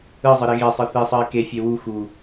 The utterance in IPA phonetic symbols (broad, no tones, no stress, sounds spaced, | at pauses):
ɯ zˤ ɯ ɾ e ɣ e sˤ ɯ θ i sˤ ɯ ɪ̯ k e fʲ e w u x u